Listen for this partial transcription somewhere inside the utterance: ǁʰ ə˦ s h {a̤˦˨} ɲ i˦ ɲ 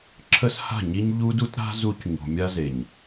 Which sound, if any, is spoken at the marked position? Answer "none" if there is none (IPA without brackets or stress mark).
a̤˦˨